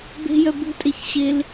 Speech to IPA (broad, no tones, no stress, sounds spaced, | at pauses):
b e̤ j œ b ṳ tʼ e ç ɕ e l